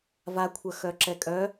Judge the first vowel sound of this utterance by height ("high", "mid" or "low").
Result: low